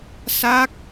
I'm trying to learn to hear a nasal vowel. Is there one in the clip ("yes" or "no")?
no